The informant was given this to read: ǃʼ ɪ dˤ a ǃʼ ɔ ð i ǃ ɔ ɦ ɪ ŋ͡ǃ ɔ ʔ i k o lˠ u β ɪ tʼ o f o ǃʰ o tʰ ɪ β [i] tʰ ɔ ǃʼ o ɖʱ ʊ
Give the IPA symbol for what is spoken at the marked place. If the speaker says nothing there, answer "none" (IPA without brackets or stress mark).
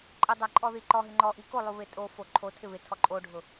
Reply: ɪ